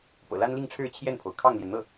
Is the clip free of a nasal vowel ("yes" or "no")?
yes